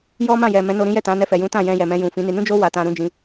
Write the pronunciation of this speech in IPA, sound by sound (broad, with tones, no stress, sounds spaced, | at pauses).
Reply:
j ɔ˦ m ã˦˨ j ɛ˨ m ɛ̃˨˦ n o˧ ɾ ĩ˦ j ɛ˦˨ t ã˨˦ n ɛ˧ f ɛ˨ j ũ˨˦ t ã˦˨ j ɛ̃˧ j ɛ˨ m ɛ̃˧ j ũ˨ f ĩ˨˦ n i˧ n ũ˦ d͡ʒ o˦ w a˧ t ã˧ ɾ ũ˦ d͡ʒ ĩ˧